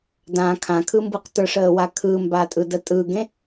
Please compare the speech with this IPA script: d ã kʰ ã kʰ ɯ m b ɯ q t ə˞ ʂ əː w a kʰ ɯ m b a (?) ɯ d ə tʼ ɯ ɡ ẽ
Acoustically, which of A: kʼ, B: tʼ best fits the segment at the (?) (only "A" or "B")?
B